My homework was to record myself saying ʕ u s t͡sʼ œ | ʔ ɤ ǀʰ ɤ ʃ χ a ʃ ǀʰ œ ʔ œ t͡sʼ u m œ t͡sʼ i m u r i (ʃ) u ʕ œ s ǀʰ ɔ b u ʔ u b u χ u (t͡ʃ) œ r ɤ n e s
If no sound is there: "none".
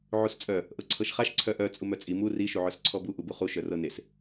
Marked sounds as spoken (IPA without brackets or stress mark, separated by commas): ʃ, ʃ